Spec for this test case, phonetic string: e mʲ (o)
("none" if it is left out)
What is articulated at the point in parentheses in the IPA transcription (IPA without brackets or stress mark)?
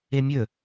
ɵ